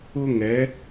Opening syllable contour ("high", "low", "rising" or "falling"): high